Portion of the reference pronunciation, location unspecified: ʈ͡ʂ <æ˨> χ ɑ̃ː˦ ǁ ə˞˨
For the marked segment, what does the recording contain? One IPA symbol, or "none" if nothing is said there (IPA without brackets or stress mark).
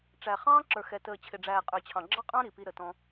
æ˨